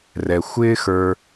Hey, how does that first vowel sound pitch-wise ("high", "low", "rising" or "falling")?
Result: low